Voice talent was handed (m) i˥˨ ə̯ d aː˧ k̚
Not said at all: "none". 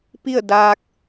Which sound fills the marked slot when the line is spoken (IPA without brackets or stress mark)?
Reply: p